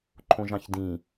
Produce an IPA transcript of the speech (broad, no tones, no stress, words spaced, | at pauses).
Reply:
ǃʰõʒɑ̃çdĩ